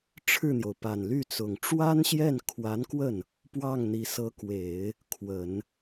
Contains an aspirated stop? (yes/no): yes